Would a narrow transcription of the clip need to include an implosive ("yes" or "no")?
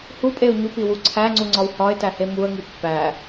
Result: no